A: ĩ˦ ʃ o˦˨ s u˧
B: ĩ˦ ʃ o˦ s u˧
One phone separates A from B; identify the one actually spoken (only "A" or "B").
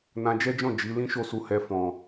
A